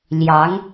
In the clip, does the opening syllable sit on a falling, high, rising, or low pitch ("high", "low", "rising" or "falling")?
rising